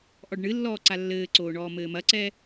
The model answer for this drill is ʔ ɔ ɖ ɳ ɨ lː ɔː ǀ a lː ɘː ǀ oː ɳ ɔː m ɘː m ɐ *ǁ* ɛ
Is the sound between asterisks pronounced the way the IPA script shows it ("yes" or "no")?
no